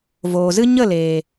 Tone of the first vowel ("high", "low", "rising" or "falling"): low